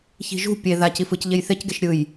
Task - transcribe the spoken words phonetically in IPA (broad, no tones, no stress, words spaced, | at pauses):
çi̤ʒṳ pʲe ðac ifɯcʎej θecɡeʃ ɾʲɯj